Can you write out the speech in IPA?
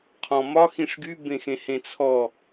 qʰ ɔ̃ m ɒ x ĩ ʂ ɡ y b ẽ x ẽ h ẽ t͡sʰ ɔ

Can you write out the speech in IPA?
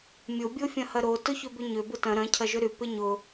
mʲ o bʲ o fʲ ɐ̃ h ɐ ɾ o t ʊ ç ʏ b ʏ ɲ ʏ b ʊ t ɐ̃ ɾ ɐ̃ cʰ ɐ ʒ ʏ ɾ y p ɪ ɲ ʊ

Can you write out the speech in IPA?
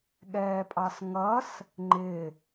ɠ ɛː pʼ ɑ s ŋ ʌ s | ŋ͡ǃ ɪ

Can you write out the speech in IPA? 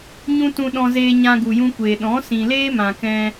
ɲ ũ˧ t ũ˧ ɗ ɔ̃˧ z eː˧ ɲ ã˧ ɡ u˨ j ũ˧ kʷ eː˨ ɗ ɔ̃˨˦ s ĩ˨ l eː˦ m ã˨ k ɛ̃˧

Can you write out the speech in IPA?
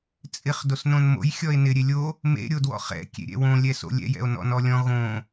t͡sʼ ɪ χ d o s n õ n m o̰ j xʲ ɔ e̯ n ɪ ɾʲ e lʲ o | m ḛ ɾʲ o d w ɔ̰ χ ɛ̰ kʲ ḛ ɾʲ ɛ̰ w õ lʲ ɛ s o̰ lʲ ɛ̰ j ɛ̰ o̯ n ɔ̰ n ɔ lʲ ɔ̃ ɣ õ

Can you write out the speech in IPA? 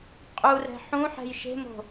qʼ u r ɛ̤ ħ ũ ħ ɛ̤ j ʃ e̤ m o̤

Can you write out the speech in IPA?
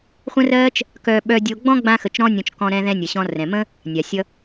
χʷ ə̃˥ r ɜː˥ t͡ʃ | k œ˧ ɓ œ˧ dʲ o˧ ɡ͡b ɔ̃˥ ɡ͡b ã˥ x ə˧ t͡ʃ ɾ ɔ̃˥ nʲ ɔ̃˧ t͡ʃ k ɔ̃˧ ɾ ɛ̃˧ ð ɛ̃˧ nʲ ʌ˩ ɕ ɔ̃˧ r ɛ̃˩ m ə̃˥ | nʲ a˩ sʲ ʌ˧

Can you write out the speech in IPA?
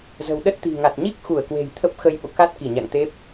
z ə̤˨˩ w ɗ ə˦˥ t̚ t̪ i̤˨˩ ŋ a˨˩ t̚ ɲ i˦˥ k̚ x u˧˩ ə̯ k w e̤˨˩ j t̪ʰ ə˦˥ p̚ x ə˧ j ɓ o̰˧˨ k a˦˥ t̚ k i˧˩ ɲ a̰˧˨ ŋ t̪ e˦˥ p̚

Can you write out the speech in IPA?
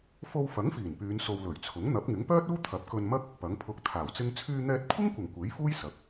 f o˧ w f ɐ˨˥ ŋ f iː˨˩ n p yː˨˧ n s o˨ w l ɵ˨˩ ɥ t͡sʰ ʊ˨˥ ŋ n̪ ɐ˨˥ p̚ ŋ ɪ˨˥ ŋ p œː˥ t̚ uː˥ t̪ʰ ɐ˨˥ p̚ k ɵ˧ n m ɐ˥ k̚ | p ɐ˨˥ ŋ pʰ ʊ˧ k̚ t̪ʰ aː˨˩ w t͡s ɪ˥ ŋ t͡sʰ yː˧ n̪ ɛː˧ t̚ kʷʰ ɪ˥ ŋ kʷ ɐ˨˩ ŋ kʷ e˨˥ j f uː˥ j s ɐ˨˥ k̚

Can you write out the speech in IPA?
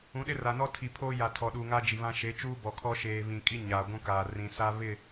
ũ˨˦ ɗ ɪ˦ r a˨ n ɔ˦ tʰ i˨ pʰ oː˦ j a˨ tʰ ɔ˨ ɗ uː˨ ŋ a˦ d͡ʒ i˨ β ã˦ ʃ e˨˦ t͡ʃ uː˦ b ɔ˨ kʰ ɔ˦ ʃ eː˨ β ĩ˨ kʼ i˦ ɲ aː˨ ɡʷ ũ˦ k aː˨ r ĩ˨ s a˦ β ɪ˦˨

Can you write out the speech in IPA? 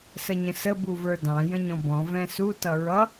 s ə ɲ ə̃ s ə b u v ə˞ d ɑ̃ j ə̃ ɲ ɔ̃ b ɔ̃ v ɛ̃ s u t ʌ ɹ ʌ

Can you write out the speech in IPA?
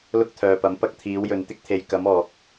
l ʊ˥ k̚ t̪ʰ œː˨ p ɐ˨˥ m p ɐ˧ k̚ t̪ʰ iː˨˧ w j ɵ˨ n t̪ ɪ˥ k̚ t̪ʰ e˨ j k ɐ˨˧ m ɔː˨ k̚

